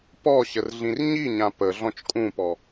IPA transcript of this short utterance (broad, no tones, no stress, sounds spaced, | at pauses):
p ɔ ɕ ə r ɮ ĩ r ɲ i ɲ ã p ə ɮ ɔ̃ t͡ʃ kʼ ũ p ɔ